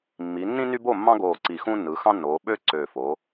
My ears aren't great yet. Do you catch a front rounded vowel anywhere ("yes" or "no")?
yes